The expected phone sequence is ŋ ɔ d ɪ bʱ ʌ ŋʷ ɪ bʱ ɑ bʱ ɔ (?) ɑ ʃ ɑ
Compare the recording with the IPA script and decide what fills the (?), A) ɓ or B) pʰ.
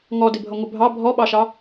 A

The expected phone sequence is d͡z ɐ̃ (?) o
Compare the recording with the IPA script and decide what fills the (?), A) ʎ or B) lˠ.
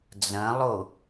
B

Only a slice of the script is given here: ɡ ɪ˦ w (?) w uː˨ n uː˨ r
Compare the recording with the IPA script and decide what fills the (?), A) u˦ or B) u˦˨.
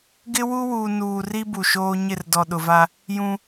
A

